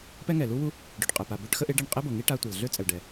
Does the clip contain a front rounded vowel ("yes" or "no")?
yes